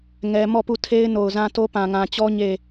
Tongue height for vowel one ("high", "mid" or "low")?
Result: mid